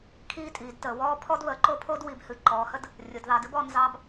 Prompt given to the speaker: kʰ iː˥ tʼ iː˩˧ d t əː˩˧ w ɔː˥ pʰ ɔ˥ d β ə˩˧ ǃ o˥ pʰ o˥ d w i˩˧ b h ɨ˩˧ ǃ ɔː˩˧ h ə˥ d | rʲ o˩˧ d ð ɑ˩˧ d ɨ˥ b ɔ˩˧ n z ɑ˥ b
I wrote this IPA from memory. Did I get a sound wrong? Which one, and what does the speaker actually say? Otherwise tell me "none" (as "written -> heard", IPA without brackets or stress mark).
none